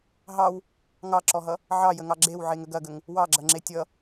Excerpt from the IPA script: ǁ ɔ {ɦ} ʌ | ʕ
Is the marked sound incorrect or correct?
correct